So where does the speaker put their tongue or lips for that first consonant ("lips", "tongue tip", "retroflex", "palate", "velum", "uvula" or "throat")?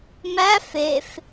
lips